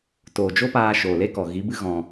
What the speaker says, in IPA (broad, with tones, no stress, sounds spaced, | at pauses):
t oː˨ d͡ʒ o˦ p aː˧ ʃ oː˨ l e˦ k ɔ˨ ɣ i˨˦ b ɨ˦ ɣ ɔ̃˧